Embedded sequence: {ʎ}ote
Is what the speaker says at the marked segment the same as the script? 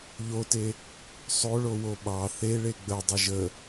yes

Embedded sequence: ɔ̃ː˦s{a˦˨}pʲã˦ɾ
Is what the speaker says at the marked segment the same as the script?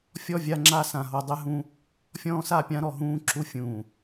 yes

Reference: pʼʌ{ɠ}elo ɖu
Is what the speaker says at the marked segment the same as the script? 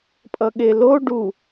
yes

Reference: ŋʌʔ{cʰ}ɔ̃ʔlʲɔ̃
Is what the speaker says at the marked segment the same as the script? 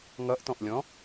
no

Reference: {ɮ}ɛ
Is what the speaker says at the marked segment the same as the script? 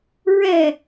no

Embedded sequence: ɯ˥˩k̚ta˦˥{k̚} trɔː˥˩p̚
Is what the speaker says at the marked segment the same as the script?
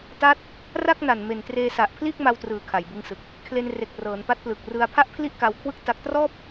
yes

